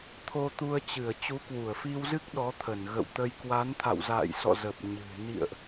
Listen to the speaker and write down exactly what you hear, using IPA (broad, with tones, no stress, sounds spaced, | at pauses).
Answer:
t̪ʰ o˧ t̪ u˧ ə̯ t͡ɕ ɨ˧˩ ə̯ t͡ɕ u˨˦ k w u˧˩ ə̯ f i˧ w z ɨ˦˥ k̚ ɗ ɔ˨˦ t̪ʰ ə˧˩ n ɣ ə̰˧˨ w t̪ ə˧ j k w a˨˦ n t̪ʰ a̰˧˨ w z a̰ː˧˨ j s ɔ̰˧˨ z ə˨˩ p̚ ɲ ɨ̤˨˩ n ḭ˧˨ ə̯ ʔ